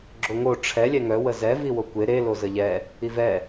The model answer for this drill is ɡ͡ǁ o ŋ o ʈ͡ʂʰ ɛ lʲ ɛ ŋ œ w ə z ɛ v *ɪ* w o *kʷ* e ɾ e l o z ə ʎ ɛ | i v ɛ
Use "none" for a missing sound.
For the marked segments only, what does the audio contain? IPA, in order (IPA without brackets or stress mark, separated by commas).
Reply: i, kʷ